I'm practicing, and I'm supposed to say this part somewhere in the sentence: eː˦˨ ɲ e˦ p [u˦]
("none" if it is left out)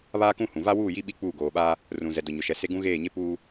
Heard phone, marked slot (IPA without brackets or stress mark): uː˦